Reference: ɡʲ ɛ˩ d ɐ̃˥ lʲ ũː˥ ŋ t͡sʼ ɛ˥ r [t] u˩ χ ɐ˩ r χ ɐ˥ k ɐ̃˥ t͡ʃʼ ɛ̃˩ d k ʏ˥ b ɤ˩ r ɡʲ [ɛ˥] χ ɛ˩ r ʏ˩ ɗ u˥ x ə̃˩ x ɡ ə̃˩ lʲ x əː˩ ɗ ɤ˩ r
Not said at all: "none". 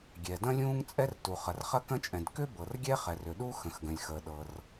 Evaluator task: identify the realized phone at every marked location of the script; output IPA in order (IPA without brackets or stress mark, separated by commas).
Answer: t, ɛ˥